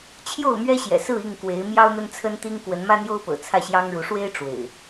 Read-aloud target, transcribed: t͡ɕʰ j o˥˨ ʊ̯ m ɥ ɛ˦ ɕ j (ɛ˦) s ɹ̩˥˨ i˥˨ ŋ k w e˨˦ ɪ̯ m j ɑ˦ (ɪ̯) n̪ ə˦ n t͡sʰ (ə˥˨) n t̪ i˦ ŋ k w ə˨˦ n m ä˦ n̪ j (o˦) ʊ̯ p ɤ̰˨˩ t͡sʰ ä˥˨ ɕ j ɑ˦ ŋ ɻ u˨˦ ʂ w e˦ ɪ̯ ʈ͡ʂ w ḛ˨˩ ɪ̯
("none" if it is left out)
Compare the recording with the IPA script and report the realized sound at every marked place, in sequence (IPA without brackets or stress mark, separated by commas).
ɛ̰˨˩, ʊ̯, ə˦, o˦